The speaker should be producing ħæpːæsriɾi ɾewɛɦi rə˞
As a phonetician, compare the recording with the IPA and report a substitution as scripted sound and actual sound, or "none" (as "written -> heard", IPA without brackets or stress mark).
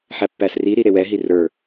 none